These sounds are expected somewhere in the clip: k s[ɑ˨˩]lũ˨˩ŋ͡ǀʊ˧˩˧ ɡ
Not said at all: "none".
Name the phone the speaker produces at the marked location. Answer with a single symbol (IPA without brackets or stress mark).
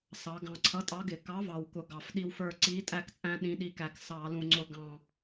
ɑ˧˩˧